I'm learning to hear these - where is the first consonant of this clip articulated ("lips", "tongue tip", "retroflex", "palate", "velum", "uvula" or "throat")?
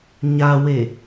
palate